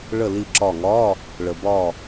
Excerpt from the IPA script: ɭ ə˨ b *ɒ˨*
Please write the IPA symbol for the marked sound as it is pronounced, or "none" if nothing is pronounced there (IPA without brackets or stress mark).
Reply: ɒ˦˨